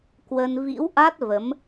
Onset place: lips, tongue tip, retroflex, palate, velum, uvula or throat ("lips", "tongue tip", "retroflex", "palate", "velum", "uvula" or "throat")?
velum